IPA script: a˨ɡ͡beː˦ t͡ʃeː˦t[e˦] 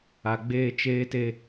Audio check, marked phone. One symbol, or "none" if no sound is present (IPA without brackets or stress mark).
e˦